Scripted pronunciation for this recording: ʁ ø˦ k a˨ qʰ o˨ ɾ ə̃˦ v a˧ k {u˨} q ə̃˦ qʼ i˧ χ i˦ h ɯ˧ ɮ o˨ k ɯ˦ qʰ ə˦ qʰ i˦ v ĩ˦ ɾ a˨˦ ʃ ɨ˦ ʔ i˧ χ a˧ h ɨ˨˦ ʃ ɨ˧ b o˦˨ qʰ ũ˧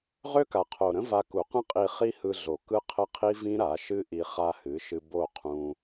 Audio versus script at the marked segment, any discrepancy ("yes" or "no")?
no